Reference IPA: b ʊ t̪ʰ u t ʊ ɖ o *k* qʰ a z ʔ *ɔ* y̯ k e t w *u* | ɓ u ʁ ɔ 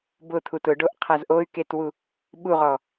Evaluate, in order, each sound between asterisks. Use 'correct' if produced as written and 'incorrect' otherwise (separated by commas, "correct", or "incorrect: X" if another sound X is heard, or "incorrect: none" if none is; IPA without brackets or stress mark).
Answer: incorrect: ʔ, incorrect: o, correct